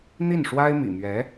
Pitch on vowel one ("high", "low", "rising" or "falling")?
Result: falling